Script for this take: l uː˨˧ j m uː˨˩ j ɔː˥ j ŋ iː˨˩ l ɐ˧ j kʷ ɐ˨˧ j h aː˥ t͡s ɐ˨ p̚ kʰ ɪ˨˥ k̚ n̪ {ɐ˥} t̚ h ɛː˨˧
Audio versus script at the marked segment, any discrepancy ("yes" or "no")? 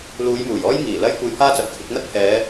no